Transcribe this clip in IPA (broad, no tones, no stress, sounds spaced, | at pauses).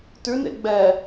t ʉ n ḛ ɡ͡b ɛ